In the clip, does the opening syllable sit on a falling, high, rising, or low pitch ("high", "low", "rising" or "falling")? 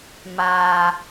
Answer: high